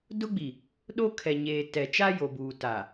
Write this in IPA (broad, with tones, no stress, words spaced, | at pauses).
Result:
dʊ˦ɡ͡bi˨ | ɗo˦ kʰɛ˨ɲeː˨ tɛ˨t͡ʃa˦jo˨buː˨ ta˨